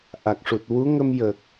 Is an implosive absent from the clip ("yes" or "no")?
yes